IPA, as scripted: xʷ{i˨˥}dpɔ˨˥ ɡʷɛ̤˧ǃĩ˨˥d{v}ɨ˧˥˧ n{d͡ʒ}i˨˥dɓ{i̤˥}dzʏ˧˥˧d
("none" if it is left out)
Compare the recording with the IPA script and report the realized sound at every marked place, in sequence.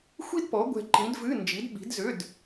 i˥, v, d͡ʒ, i̤˨˥

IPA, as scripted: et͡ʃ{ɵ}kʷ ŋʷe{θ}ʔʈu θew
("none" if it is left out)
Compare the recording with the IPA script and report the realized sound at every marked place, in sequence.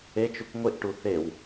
ɵ, none

